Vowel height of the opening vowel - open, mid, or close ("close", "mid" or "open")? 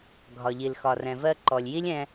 open